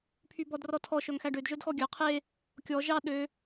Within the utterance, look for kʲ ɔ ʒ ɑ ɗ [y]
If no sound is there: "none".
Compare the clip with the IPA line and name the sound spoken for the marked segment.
ø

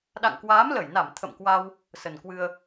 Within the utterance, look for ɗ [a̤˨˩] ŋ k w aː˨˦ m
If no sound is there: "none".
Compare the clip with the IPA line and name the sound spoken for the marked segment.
a̰˧˨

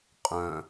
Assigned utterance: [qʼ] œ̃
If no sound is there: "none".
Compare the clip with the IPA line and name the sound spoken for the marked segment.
qʼ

